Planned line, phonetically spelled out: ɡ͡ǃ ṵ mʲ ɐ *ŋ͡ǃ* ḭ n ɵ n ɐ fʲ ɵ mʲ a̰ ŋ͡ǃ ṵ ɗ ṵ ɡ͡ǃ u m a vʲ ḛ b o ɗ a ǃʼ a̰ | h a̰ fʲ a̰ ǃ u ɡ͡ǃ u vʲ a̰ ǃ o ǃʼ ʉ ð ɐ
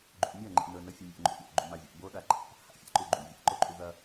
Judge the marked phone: correct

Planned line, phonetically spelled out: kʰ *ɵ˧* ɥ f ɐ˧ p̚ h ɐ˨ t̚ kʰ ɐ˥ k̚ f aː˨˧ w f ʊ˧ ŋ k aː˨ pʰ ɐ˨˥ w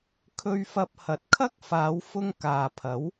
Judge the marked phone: correct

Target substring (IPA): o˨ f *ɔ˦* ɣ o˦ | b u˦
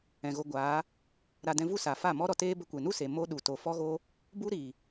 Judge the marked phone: correct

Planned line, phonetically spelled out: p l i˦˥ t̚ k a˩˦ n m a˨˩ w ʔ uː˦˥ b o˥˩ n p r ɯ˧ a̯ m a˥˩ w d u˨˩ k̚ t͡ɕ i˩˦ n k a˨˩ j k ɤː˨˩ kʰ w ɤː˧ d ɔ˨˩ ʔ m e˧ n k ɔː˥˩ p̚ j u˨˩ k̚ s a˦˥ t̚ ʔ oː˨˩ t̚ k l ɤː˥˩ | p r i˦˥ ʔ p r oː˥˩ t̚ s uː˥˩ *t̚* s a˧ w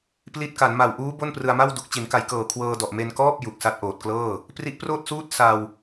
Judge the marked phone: correct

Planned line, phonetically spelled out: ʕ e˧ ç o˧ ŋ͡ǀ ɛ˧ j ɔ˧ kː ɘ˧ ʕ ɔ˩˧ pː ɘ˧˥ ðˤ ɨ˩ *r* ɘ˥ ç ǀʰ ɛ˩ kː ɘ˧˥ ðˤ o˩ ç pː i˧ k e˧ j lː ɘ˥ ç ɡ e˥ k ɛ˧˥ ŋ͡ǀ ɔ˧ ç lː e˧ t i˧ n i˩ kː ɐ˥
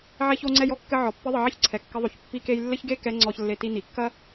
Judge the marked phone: incorrect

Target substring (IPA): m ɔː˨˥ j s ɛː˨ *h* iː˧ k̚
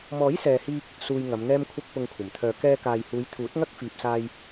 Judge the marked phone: correct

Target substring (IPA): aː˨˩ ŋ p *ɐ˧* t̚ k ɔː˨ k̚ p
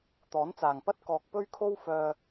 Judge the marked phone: incorrect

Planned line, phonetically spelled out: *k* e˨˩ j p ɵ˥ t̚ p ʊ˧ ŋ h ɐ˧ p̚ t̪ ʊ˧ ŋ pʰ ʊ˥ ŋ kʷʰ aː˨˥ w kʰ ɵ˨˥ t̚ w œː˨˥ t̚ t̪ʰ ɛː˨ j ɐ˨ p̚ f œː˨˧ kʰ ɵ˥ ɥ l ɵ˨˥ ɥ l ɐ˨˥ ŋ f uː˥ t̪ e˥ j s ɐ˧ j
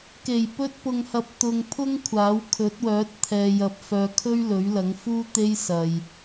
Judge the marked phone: correct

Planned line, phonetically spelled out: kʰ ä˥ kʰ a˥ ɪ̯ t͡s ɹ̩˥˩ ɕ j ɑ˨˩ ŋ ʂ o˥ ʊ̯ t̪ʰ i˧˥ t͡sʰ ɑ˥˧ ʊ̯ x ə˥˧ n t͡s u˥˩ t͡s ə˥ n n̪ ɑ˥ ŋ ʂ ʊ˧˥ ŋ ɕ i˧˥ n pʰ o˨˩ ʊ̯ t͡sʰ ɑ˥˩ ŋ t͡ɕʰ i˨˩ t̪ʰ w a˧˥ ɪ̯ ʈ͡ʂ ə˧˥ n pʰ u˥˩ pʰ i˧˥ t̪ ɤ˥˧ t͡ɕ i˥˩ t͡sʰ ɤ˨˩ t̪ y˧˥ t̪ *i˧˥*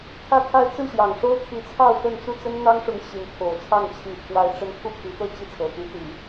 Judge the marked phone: incorrect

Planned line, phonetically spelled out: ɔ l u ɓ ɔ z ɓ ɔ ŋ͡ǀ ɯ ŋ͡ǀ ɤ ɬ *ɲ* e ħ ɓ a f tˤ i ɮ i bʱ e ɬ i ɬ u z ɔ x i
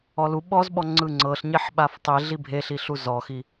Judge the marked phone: correct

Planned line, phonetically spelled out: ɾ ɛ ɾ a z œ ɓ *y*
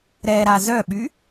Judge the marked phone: correct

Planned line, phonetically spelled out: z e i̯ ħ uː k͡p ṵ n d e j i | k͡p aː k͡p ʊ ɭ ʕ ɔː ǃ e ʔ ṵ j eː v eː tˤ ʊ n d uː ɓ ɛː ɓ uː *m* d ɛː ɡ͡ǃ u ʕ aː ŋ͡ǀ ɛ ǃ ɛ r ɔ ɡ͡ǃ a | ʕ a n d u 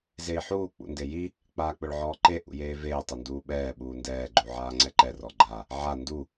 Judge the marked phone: incorrect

